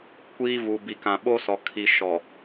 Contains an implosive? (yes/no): yes